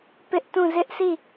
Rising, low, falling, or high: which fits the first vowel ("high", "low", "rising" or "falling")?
high